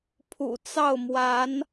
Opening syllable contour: low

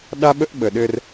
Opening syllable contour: high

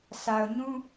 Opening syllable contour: low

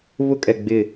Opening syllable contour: high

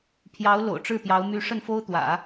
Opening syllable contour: rising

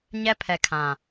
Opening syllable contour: high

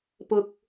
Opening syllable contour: low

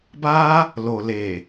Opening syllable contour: high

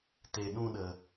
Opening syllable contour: low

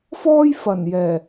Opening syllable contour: high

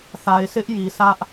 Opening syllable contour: low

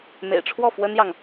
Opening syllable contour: low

